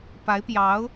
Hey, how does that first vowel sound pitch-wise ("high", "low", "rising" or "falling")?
rising